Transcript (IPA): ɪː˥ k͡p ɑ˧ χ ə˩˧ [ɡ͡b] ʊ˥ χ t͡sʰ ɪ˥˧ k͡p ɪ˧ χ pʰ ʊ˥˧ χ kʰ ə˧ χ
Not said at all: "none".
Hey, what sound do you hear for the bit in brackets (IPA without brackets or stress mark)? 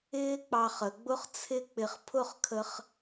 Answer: ɡ͡b